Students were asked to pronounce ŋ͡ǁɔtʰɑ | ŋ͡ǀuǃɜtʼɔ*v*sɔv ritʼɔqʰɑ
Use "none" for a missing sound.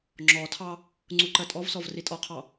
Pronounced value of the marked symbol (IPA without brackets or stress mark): v